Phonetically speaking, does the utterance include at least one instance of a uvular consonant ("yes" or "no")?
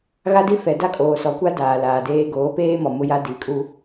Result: no